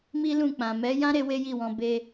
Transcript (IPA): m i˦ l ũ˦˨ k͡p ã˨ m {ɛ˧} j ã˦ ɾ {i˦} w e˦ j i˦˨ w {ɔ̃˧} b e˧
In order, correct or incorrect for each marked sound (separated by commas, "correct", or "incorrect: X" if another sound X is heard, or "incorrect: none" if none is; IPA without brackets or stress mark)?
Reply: incorrect: ɛ˨˦, incorrect: e˦, correct